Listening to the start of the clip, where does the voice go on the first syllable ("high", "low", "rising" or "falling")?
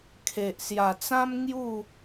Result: low